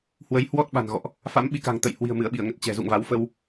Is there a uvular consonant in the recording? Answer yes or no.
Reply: no